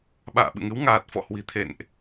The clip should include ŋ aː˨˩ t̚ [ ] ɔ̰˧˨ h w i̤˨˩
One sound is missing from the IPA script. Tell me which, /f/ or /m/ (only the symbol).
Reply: f